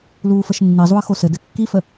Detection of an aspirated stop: absent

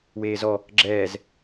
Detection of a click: present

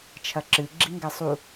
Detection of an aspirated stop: present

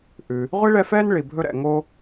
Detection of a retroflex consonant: present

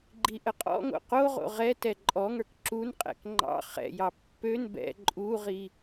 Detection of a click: present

